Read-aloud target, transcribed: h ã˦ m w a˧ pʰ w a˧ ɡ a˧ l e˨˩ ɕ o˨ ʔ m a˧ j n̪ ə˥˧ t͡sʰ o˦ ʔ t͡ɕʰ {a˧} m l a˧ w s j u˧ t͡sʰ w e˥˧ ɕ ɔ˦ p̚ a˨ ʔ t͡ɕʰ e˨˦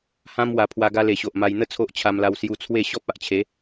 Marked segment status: correct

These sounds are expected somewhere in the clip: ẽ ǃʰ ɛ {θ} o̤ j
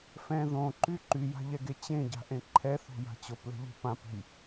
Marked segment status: correct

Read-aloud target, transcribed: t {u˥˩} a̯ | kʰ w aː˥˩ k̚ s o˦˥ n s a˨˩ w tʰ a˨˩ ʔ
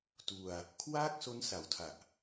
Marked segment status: incorrect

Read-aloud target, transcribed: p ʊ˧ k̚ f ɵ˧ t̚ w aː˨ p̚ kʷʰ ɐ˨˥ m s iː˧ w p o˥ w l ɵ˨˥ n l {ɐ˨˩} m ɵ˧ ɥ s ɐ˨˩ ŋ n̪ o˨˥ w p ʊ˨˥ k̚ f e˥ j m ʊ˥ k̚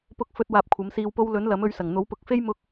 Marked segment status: incorrect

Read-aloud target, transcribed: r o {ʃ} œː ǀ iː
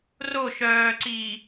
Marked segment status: correct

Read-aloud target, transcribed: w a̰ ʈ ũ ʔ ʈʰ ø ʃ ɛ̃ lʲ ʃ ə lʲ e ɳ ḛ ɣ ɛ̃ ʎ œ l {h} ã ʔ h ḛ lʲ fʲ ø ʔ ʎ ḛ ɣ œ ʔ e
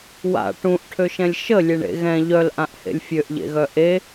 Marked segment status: incorrect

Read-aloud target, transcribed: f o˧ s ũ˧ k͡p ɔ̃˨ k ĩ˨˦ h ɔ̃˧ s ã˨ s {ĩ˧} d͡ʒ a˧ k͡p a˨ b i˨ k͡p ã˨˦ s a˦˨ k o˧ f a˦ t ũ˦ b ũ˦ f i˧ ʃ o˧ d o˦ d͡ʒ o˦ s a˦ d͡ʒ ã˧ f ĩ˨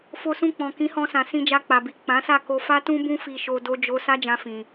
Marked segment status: correct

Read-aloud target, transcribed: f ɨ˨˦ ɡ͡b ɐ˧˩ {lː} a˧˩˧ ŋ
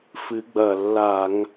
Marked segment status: correct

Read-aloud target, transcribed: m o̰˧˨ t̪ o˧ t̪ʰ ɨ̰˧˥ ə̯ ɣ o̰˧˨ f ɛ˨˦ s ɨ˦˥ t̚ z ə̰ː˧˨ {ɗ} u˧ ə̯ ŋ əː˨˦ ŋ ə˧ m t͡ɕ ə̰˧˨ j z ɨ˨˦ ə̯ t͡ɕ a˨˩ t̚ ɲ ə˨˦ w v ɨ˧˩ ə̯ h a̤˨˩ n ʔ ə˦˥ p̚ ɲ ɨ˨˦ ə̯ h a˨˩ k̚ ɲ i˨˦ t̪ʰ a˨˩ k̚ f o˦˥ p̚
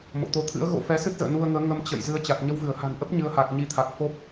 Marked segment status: incorrect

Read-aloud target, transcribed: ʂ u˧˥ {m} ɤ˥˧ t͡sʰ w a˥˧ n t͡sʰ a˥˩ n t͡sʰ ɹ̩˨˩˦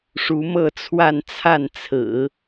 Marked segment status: correct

